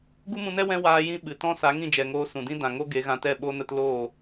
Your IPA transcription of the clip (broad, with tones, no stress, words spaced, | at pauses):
ɡu˦mũ˧nɛ˦ wɛ̃˦ waː˧jĩ˧ ɓɨ˨tɔ̃˦ sa˨˦ŋĩ˦˨d͡ʒɛ˨ŋoː˧ sũ˨dĩ˦ dã˨ŋo˦ ɡe˨˦ɣã˧tɛ˦˨ ɓo˦nə˦t loː˦˨